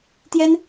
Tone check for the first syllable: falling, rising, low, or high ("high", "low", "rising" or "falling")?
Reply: high